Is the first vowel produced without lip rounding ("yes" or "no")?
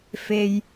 yes